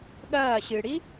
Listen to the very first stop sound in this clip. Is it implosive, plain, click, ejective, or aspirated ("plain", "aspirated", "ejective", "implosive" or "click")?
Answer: implosive